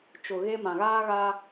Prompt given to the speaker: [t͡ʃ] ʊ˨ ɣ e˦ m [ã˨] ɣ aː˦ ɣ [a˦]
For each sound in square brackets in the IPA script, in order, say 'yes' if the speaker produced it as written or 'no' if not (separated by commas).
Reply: yes, yes, yes